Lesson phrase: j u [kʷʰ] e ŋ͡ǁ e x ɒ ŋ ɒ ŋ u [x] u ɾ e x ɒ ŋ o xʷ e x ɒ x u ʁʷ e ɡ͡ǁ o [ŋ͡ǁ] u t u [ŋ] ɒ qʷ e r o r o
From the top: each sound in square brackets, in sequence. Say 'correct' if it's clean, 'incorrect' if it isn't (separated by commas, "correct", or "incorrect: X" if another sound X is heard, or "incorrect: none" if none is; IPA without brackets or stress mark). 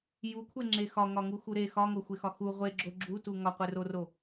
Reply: correct, correct, incorrect: ɡ͡ǁ, correct